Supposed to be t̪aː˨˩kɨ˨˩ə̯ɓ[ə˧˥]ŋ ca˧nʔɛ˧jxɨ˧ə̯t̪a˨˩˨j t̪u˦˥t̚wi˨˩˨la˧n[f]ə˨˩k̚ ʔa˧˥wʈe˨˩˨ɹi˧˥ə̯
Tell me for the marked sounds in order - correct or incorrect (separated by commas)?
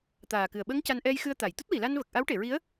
correct, incorrect